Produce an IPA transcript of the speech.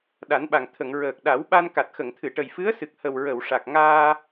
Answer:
ɗ a˨˩˦ n ɓ a˨˩ ŋ t̪ʰ ə˨˩˨ ŋ ɹ əː˨˩ k̚ ɗ a˨˩˦ w ɓ a˧ n k a˨˩ t̚ x ə˨˩˨ ŋ t̪ʰ ɨ˨˩˨ ʈ ə˨˩ j f ɨ˧˥ ə̯ s ɨ˨˩ k̚ h ə˨˩ w ɹ ə˨˩˨ w ʂ a˨˩ k̚ ŋ aː˧

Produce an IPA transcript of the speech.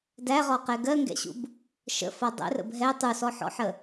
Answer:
d æ ʁ ɔ q ɛ ɡ ɜ ŋ ɡ ɛ̰ ɕ ṵ b | ʃ ə̰ f ʌ dˤ ɛ̰ r ə̰ b ɦ ɛ tˤ u s ɔ ħ ɔ̰ ħ ə

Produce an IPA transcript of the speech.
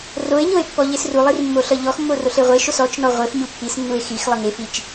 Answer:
r o e̯ ɲ o e̯ pː ɔ ʎ e s r u lˠ i r mː o ɬ ʌ ʎ ɔ x mː o r o ɬ e ʁʷ e ʃ o s ɔ t͡ʃ n ɔ ʁʷ e f ɲ u pː i s nː u e̯ x i x lˠ ʌ ŋ e f i t͡ʃ

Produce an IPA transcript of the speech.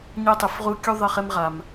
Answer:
ɲ ɛ˦ tˤ ɪ˨ f ʁ u˦ kʲ u˦ ðˤ ɪ˦˨ χ e˦ m ʁ a˨ m

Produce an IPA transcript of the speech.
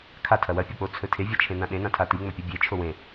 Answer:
kʰ a tʰ ɐ w ɐ pʲ o k͡p o t͡sʰ ɵ tʰ e vʲ a t͡ʃʰ ẽ n ã ɗ ẽ n ã tʰ a t i ŋ͡m ɵ pʲ u bʲ e t͡ʃʰ o w ẽ

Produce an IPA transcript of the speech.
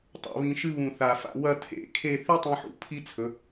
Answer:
tˤ a̰˩˧ β ĩ˧ ʃ ɨ˥ β ũ˧˩ θ a˧˩ f a̰˧ w ɐ˥˧ tʰ ḛ˧˩ kʰ e˥˧ θ i˥ tˤ ĩ˧ ħ ṵ˥˧ pʰ i˥ t͡sʰ ɵ˩˧

